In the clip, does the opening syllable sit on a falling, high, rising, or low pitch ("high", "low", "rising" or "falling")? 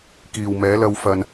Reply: low